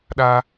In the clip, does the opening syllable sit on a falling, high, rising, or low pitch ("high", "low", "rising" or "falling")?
high